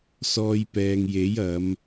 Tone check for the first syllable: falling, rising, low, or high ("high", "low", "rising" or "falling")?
high